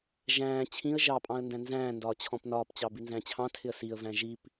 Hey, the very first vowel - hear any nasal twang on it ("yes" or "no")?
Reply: yes